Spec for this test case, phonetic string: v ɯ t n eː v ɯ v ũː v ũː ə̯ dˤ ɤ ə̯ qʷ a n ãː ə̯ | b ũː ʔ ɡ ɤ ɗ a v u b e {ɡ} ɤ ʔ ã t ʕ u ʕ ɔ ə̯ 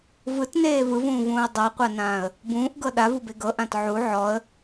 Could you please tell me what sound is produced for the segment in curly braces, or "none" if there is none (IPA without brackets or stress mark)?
ɡ